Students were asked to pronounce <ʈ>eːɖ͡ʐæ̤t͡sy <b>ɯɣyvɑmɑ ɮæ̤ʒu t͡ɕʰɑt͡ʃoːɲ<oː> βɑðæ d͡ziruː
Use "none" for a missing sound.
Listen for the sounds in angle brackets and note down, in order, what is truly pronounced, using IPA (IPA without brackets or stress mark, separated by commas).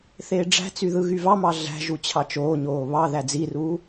θ, ð, oː